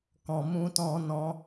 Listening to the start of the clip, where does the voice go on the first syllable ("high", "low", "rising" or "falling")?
low